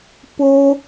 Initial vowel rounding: rounded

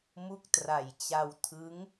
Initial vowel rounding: rounded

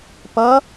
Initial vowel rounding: unrounded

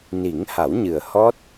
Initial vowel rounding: unrounded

